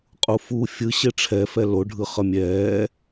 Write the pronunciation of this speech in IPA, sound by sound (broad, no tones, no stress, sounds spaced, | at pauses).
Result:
qʼ u f u fʲ ɯ ɕ e ʈ͡ʂʰ ɛ f ɛ l o ɖʱ ɯ χ ʌ mʲ ɛː